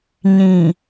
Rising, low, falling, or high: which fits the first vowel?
low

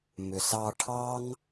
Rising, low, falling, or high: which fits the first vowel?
low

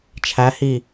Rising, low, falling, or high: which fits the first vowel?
rising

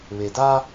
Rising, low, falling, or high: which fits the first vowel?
low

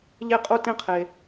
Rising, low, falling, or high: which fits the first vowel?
falling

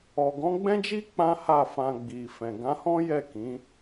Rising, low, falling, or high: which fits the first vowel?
low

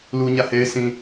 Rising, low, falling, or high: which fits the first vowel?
high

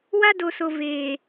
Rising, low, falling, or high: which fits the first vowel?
high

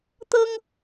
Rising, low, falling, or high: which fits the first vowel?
high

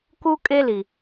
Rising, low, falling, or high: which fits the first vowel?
high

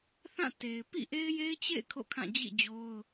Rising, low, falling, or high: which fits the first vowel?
falling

